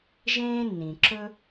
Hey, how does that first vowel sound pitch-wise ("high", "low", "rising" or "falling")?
high